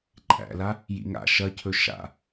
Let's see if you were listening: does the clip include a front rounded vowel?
no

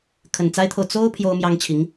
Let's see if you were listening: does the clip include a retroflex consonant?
no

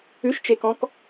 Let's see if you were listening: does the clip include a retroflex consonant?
no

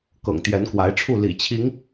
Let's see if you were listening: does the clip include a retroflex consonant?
yes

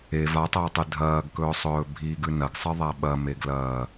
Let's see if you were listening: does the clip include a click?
no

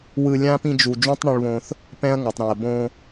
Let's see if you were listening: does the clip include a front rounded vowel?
no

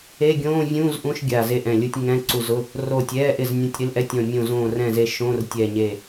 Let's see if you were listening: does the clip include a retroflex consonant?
no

